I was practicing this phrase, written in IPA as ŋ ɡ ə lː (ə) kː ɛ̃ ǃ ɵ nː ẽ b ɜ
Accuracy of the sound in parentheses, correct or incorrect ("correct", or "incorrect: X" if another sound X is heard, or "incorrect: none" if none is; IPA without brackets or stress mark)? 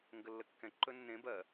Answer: correct